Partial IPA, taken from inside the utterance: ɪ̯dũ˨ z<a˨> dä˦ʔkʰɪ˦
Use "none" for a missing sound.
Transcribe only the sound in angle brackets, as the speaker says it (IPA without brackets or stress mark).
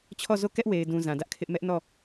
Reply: ã˨